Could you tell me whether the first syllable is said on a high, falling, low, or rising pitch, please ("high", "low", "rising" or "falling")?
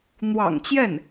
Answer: low